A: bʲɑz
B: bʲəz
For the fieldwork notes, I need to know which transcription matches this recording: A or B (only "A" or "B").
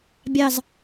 A